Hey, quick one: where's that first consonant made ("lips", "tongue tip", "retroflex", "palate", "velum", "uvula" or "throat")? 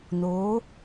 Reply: tongue tip